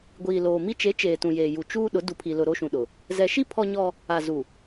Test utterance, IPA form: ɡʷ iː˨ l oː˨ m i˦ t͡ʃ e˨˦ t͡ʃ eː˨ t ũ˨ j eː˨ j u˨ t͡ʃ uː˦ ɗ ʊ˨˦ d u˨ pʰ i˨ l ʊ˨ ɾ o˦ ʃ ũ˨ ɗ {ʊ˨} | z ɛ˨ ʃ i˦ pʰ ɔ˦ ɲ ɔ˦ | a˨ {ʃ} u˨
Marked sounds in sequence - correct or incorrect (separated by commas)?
correct, incorrect